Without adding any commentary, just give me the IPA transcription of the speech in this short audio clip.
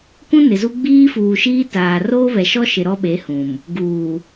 kũ˦nɪ˨zu˦ ɡ͡biː˦fuː˨ʃiː˦taː˨ roː˦βɛ˨ʃɔ˦ ʃɪ˨ɾɔ˦ɓe˨˦ hũ˨m | ɡuː˨

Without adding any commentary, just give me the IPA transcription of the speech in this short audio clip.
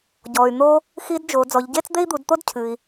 ɟɔː˩y̯n̪oː˧ | xi˧˥dd͡ʒo˩˧ d͡zɔ˩˧ʎɟeː˥t͡s d̪e˥i̯d̪u˩˧dt̪o˥dcʰɨː˩i̯

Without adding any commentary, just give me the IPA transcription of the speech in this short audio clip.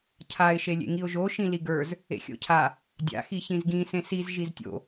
cʰaɪ̯ ʃelʲḛŋiʊ̯ʒo ʃĩliɡə˞z | ḛxʲo̰cʰa | dʲa̰ xiçĩzɡĩ sẽsiz ʒiztʲo̰

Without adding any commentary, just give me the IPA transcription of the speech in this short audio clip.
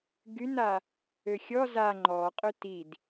ɡyna | øxʲɔ za ŋ͡ǃɔqʼø tid

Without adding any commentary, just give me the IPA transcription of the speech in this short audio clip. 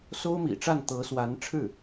so˥ʊ̯mḭ˨˩ʈ͡ʂa˥˩n t̪ɤ˧˥swa˧˥nʈ͡ʂʰɻ̩˥˩

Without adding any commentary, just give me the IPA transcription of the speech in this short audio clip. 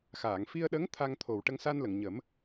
xaː˨˩˨ŋfi˧ə̯ɗə˧˥ŋ t̪ʰa˧ŋt̪ʰo˨˩w ʈə˧ŋsa˧nlə˨˩˨ŋɲə˨˩˦m

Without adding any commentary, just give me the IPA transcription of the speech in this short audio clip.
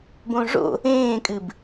bõʐo̰ | ẽːkʼɨb

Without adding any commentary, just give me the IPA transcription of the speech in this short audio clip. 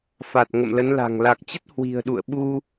fa˨˩t̚ ŋə̰˧˨mlə˨˦nla̤˨˩ŋ la˨˩k̚t͡ɕə˦˥t̚ hwi̤˨˩ə̯ɗṵ˧˨ə̯ɓu˧

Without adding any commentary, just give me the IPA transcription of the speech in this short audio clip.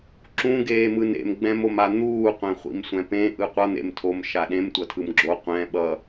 ǁũ ɡeːmɯnḛm ɡ͡bɛ̃moman̪uː qʷɛ̃χʷḭmsʷɛ̃pẽ ʔɯqʷʌ n̪ḛmtʰom ʃaɗẽm tʷʌtʰɯmɡ͡ǁo qʷɛ̃ ɓʌ

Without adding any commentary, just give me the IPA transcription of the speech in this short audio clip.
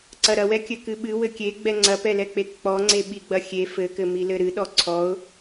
ǀɐɾɐwɛkʲɘ kɨɓɨ wɘkʲe ɡ͡bɛŋ͡ǀɐpɛlɛ k͡pekk͡pɔŋ͡ǀe ɓiɡ͡bɐxʲe fɘkɘmi lɘɾɨɗɔ ǀʰɔʊ̯

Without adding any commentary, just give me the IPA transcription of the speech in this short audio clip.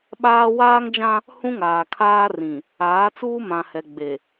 ɓaː˦ waː˦ŋd͡ʒã˦ | hũ˦ŋaː˨ kʰaː˦rĩ˨ | aː˨˦t͡suː˦mã˨hɛ˨ ɡ͡be˨

